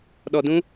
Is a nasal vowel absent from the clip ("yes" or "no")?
no